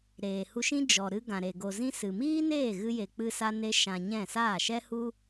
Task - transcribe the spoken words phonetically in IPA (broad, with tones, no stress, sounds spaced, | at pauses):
ɾ eː˨ h u˧ ʃ ĩ˦ d͡ʒ ɔ˨ ɾ ɨ˧ ɡ ã˨ ɾ e˨ ɡ o˨ z ĩ˦ s ɨ˨ m iː˦ n eː˦˨ ɣ ɨ˦ j e˧ k͡p ɨ˦ s a˦ n e˦ ʃ ã˧ ɲ ɛ̃˦˨ s aː˦˨ ʃ ɛ˦ h u˦